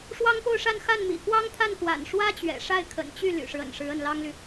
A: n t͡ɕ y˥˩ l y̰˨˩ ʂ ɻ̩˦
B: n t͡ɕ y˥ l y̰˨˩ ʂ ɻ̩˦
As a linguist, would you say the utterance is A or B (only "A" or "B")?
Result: A